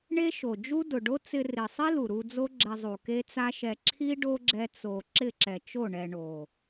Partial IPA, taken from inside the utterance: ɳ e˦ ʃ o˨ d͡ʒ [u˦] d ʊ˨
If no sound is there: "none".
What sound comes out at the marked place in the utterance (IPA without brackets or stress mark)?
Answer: u˦